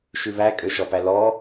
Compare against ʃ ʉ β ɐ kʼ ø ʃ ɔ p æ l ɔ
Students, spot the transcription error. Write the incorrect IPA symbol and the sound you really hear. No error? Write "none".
ɐ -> æ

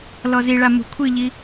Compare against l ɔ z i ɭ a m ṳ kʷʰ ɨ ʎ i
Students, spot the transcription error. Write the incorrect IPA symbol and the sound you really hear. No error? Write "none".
none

